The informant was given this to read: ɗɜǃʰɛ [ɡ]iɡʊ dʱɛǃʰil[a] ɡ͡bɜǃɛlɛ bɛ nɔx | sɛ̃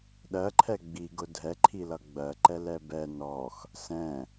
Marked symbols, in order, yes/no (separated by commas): no, no